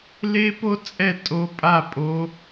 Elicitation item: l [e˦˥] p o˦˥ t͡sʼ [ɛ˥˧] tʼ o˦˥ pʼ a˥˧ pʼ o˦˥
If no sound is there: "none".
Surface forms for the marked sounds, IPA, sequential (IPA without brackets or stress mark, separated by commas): e˦˥, ɛ˥˧